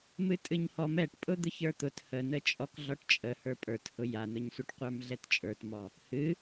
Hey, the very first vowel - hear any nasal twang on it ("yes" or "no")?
no